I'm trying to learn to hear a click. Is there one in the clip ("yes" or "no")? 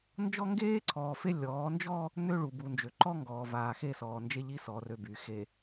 yes